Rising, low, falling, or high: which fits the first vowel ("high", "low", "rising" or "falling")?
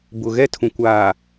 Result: low